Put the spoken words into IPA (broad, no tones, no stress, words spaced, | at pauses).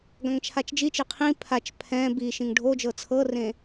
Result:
ɡãŋt͡ʃʰat͡ʃd͡ʒit͡ʃe qʰĩ pʰat͡ʃ pʰɛ̃ bi ʃĩŋɖʱod͡ʒɤ t͡sʰɤrẽ